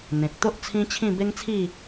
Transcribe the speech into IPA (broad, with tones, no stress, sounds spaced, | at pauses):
n̪ ẽ˨ k̚ t̪ o˦ ʔ t͡sʰ ĩ˦ t͡ɕʰ ĩ˥˧ b e˦ ŋ t͡sʰ i˥˧